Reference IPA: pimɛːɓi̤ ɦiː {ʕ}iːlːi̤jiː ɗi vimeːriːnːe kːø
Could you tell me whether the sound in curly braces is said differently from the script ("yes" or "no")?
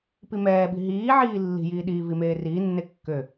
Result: no